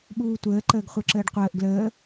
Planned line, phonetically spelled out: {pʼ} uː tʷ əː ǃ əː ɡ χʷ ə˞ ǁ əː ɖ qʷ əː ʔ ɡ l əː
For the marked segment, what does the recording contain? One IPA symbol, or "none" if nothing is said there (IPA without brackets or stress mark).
ɓ